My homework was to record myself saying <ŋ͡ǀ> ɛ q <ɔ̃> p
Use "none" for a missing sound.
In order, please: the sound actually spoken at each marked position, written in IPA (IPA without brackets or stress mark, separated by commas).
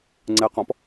ŋ͡ǀ, ɔ̃